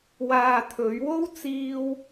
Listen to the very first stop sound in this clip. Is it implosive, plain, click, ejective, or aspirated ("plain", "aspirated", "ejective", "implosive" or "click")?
aspirated